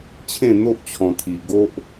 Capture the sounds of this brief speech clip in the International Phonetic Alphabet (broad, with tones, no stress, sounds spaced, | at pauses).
t͡ɕʰ ẽ˥˧ n̪ o˦ ʔ t͡ɕʰ ɔ̃˧ t̪ʰ i˧ ɡ o˦ ʔ